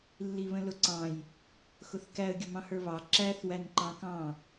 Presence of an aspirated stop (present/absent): absent